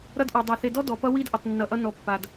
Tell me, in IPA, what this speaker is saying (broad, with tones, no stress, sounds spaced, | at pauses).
ɾ ʌ˦ d ʔ ɔ˨ dˤ a˨ θ e˨ d ɔ˦ d ɔ˨ p ʌ˦ w i˦ d ʔ ʌ˨ tˤ nː ʌ˨ ʔ ʌ˦ n ɔ˨ pː a˨ d